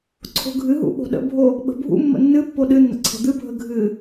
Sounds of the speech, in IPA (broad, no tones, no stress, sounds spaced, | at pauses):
ǀʰ o̤ ɡʱ ɨ ɦ ṵ ɓ o̤ ɗ ə̰ bʱ o | ɓ ə̤ bʱ ṵ mː ə̰ nː ɨ pː o ɗ ɨ nː ə̰ ǀʰ ə̤ d̪ ɨ bʱ ə ɡʱ ɨ